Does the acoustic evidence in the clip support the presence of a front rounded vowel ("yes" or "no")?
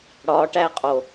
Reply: no